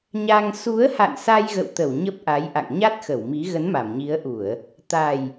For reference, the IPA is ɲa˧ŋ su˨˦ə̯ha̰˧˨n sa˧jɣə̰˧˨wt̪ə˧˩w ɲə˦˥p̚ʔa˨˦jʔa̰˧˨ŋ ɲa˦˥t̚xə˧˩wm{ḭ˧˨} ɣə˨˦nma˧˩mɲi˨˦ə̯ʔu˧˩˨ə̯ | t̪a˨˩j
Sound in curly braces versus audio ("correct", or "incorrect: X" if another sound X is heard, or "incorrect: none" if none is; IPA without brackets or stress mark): incorrect: i˨˦